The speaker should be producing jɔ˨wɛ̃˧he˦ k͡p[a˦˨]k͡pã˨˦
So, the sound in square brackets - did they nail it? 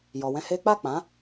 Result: yes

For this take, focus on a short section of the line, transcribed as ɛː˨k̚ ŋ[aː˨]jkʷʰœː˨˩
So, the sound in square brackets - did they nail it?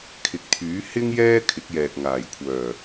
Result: no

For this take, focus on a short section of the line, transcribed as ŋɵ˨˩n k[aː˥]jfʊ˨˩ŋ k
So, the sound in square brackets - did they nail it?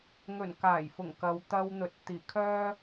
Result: no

